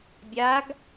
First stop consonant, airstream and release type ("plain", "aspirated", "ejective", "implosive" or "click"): plain